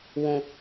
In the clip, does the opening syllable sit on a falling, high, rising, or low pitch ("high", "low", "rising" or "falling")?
low